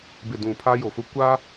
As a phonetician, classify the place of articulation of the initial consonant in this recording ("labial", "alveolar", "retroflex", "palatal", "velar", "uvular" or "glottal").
labial